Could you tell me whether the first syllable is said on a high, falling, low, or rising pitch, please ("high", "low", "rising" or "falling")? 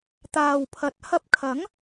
low